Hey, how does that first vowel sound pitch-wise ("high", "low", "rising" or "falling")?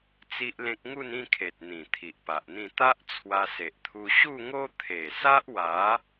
high